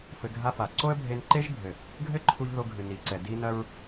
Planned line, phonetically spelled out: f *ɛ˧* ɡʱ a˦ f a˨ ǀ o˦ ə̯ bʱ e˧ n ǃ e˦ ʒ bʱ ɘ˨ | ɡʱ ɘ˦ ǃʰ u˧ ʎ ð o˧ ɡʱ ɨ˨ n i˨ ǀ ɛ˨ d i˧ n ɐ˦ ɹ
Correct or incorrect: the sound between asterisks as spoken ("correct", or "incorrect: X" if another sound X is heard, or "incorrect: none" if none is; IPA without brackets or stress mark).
incorrect: ɘ˧